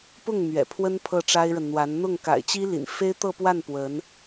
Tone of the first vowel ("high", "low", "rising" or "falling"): falling